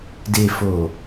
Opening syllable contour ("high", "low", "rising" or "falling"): low